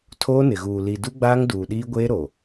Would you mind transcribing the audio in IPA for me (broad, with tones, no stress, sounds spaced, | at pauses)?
tʰ oː˦ n ɪ˨ ɣ uː˨ l i˨ d u˦ ɡ͡b aː˦ ŋ d uː˨ ɗ iː˦ ɡʷ eː˦ ɾ o˨